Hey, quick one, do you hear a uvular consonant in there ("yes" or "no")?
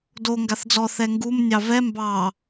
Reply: no